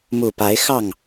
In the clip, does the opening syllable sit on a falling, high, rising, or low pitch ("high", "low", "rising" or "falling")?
low